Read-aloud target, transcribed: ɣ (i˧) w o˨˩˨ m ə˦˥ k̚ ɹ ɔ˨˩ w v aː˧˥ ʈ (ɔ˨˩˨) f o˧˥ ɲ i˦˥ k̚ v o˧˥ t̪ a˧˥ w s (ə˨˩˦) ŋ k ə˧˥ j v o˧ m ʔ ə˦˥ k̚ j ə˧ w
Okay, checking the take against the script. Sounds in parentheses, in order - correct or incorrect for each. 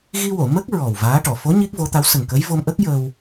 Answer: correct, correct, incorrect: ə˨˩

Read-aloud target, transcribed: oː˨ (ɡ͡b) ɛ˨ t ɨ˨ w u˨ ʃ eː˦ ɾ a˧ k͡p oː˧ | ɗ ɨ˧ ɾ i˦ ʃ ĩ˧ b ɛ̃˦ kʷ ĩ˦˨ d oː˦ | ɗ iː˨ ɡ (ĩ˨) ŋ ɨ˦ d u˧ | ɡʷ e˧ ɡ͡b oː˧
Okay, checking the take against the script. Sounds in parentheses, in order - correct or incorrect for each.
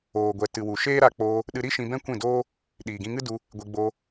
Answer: incorrect: ɡʷ, incorrect: ĩ˧

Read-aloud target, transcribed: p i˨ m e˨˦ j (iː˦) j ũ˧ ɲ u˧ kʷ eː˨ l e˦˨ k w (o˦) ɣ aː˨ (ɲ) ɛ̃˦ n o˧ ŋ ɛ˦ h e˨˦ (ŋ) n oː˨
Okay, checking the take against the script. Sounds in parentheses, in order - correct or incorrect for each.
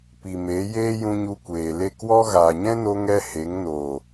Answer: incorrect: eː˦, incorrect: ɔ˦, correct, correct

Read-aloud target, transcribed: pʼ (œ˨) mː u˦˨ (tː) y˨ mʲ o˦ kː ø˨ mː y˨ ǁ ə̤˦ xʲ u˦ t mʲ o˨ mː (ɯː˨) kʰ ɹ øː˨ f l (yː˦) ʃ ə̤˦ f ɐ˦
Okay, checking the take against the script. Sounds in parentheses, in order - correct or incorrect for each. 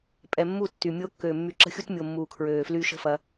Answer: incorrect: ɛ˨, correct, incorrect: uː˨, correct

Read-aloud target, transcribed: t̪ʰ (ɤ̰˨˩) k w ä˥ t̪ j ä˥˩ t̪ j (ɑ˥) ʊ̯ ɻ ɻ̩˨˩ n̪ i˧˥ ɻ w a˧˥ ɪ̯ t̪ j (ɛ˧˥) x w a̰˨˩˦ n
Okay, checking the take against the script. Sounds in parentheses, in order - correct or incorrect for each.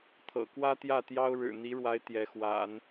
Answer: correct, correct, correct

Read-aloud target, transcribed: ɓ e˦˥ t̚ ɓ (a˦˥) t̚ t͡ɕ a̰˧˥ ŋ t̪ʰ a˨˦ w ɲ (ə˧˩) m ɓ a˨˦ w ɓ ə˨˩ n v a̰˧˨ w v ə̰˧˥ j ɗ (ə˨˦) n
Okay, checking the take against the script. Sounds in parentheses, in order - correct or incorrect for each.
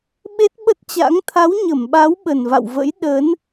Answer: incorrect: ə˦˥, correct, correct

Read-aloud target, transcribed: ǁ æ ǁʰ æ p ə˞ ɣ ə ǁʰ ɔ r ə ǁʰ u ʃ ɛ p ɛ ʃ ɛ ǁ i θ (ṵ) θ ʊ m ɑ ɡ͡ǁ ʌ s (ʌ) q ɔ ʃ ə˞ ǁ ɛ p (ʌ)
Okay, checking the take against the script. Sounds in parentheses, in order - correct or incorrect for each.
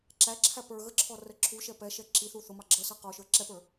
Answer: incorrect: u, correct, incorrect: ə˞

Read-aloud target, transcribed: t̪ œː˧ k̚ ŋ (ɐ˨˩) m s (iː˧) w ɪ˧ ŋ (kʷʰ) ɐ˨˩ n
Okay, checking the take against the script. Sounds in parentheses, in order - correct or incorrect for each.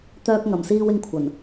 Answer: correct, correct, correct

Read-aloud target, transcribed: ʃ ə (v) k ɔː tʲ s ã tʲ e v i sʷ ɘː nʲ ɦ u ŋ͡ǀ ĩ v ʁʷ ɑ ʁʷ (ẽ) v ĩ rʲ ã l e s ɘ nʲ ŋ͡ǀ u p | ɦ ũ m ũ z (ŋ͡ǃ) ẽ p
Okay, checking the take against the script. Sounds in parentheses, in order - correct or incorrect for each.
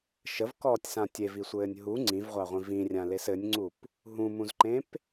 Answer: correct, incorrect: ĩ, incorrect: ǃ

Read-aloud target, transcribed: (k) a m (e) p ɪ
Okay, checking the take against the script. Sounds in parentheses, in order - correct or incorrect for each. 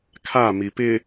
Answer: incorrect: kʰ, incorrect: i

